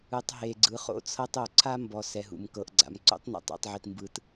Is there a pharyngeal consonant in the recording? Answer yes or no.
yes